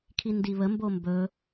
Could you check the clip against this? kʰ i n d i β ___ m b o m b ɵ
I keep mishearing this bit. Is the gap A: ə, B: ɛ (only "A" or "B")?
A